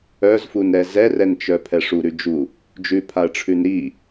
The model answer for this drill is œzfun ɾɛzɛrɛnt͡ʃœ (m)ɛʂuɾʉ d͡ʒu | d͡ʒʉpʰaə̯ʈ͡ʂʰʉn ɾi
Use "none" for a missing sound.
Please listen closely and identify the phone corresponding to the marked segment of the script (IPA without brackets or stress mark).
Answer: pʰ